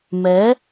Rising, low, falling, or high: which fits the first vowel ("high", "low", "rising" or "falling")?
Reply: rising